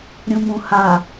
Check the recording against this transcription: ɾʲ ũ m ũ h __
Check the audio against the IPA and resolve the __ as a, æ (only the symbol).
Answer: a